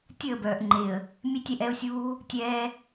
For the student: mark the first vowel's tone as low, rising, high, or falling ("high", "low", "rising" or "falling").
falling